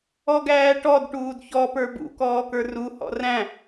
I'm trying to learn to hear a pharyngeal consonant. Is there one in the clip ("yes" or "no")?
no